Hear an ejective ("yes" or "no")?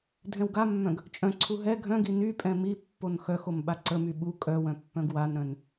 yes